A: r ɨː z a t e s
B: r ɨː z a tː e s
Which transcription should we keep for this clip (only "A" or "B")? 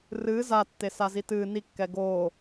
B